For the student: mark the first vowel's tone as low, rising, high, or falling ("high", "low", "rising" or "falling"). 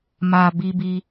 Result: low